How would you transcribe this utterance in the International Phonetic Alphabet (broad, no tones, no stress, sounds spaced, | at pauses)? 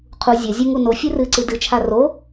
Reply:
qʰ u zʲ ɐ zʲ u ŋ u n o fʲ ɨ r ɨ ǀ ɨ d ɨ t͡ʃʰ a r o